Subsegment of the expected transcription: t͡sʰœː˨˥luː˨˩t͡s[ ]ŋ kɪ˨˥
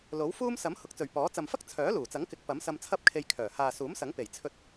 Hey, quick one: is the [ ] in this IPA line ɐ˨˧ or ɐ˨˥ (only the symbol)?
ɐ˨˥